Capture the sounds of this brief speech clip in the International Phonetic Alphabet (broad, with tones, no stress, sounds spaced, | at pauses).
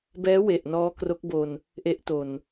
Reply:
b ɛː˦˥ w e˨˩ ʔ n ɔː˦˥ k r o˦˥ k̚ b o˧ n | ʔ e˦˥ ʔ t o˨˩ n